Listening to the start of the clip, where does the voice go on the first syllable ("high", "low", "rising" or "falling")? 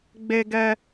high